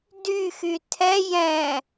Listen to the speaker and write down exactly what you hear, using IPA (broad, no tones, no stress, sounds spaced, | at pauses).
d y x y tʰ ɛ j ɛ̃